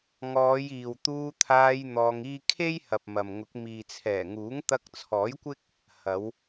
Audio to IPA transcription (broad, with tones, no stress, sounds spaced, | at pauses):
ŋ ɔː˨˧ j iː˨ w t̪ uː˧ t̪ʰ aː˧ j n̪ ɔː˧ ŋ iː˥ kʰ e˥ j h ɐ˨ p̚ m ɐ˨ m ŋ ʊ˨˥ k̚ m iː˨ t͡sʰ ɛː˨˩ ŋ uː˨˥ ŋ t̪ ɐ˧ k̚ t͡sʰ ɔː˨˥ j kʷ ɪ˥ k̚ | h ɐ˨˧ w